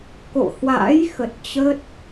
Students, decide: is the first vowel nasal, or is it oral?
oral